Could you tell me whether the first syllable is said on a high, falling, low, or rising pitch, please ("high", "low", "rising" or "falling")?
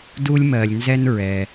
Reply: high